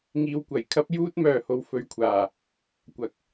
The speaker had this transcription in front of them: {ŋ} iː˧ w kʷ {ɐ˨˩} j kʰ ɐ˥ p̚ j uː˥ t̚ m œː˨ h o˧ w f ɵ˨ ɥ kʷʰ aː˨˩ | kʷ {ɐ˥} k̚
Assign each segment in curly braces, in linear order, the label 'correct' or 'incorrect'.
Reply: correct, correct, incorrect

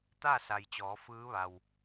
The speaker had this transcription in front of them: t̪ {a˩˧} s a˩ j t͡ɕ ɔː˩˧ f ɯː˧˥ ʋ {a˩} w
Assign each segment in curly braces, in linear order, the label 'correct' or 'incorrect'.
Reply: incorrect, correct

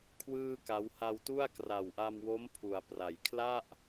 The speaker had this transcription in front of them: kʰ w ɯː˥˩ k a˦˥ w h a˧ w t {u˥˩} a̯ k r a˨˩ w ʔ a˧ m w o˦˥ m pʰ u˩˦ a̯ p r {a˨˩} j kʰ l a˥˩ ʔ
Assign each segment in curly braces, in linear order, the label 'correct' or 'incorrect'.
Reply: correct, incorrect

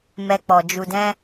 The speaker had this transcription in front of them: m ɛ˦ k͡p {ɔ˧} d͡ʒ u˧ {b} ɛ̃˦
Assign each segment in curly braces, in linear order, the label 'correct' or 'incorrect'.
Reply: correct, incorrect

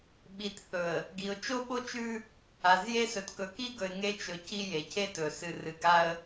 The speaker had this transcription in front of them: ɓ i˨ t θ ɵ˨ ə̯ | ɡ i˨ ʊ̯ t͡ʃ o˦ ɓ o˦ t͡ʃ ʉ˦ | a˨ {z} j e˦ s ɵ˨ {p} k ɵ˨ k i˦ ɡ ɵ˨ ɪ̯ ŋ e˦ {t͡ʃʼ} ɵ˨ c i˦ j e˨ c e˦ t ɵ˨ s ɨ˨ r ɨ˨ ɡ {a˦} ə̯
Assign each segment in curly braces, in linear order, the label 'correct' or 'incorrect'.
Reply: correct, incorrect, incorrect, correct

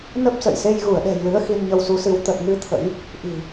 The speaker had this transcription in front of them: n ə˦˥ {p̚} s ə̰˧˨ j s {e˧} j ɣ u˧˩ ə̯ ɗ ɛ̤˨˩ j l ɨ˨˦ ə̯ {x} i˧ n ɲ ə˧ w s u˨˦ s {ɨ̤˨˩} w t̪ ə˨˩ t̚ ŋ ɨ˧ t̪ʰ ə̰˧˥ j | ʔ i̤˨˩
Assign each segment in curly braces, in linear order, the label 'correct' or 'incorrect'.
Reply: correct, correct, correct, incorrect

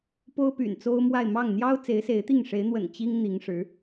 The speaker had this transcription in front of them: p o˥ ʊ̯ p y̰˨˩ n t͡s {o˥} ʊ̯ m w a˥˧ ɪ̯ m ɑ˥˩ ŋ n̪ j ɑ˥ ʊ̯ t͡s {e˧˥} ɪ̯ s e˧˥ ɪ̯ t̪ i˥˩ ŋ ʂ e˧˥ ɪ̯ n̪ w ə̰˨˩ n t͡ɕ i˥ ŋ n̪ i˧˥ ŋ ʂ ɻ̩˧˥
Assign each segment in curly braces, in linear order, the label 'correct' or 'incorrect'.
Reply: correct, correct

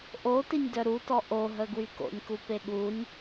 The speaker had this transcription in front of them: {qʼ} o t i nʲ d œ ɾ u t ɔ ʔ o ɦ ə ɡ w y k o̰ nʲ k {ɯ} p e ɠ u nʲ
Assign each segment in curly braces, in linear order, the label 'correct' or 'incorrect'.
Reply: incorrect, incorrect

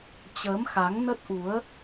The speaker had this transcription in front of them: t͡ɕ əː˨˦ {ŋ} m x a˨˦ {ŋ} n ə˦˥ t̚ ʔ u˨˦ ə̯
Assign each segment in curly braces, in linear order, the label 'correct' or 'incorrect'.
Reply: incorrect, correct

